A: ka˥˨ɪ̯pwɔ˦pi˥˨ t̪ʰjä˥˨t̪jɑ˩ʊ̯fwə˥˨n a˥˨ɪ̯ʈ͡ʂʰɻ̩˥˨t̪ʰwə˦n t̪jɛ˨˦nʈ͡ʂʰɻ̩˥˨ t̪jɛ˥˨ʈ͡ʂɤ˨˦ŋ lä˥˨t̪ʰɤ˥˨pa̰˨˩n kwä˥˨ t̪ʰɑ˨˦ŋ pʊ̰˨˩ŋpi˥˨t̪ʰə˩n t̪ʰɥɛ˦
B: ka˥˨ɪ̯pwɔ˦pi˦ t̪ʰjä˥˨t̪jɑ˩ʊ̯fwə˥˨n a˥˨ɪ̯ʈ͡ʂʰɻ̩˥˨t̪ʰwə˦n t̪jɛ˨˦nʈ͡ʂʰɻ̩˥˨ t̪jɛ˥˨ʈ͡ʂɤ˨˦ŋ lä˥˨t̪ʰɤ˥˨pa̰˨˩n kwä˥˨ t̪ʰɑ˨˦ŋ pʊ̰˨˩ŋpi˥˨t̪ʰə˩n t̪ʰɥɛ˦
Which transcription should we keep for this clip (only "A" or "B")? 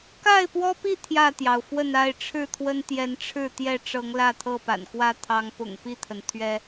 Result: A